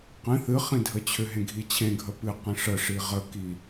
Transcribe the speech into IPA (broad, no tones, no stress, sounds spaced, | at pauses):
q ẽ θ ɨ χ ĩ dʱ ə t͡ɕʰ ʏ ɦ ẽ ɡʱ i t͡ɕʰ ẽ ɡʱ ə p ɨ q ĩ ʂ ə ʂ i ʁ ə k i